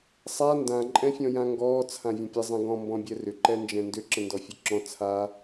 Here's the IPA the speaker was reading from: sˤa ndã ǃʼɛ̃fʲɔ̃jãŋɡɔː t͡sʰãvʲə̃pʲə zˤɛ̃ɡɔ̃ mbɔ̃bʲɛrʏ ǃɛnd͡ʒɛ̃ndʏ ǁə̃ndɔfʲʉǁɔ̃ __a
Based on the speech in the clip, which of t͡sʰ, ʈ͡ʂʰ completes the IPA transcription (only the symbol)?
t͡sʰ